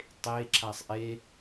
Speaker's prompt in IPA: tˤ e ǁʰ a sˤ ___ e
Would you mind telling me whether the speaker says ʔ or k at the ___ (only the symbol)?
ʔ